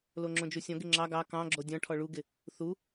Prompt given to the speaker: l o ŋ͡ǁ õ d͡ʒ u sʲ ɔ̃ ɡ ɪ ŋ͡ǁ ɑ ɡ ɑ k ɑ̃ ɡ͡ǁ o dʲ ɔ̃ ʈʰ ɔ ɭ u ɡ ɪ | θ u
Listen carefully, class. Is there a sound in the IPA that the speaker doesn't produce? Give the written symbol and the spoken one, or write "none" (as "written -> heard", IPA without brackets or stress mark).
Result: none